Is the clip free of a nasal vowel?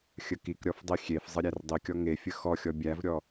yes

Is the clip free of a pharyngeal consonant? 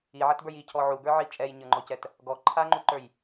no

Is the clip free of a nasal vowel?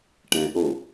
no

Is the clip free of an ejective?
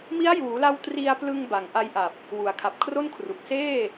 yes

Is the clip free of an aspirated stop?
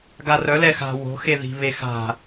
yes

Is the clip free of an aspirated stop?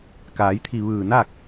no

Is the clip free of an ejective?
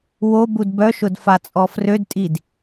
no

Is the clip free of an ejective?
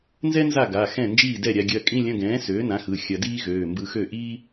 no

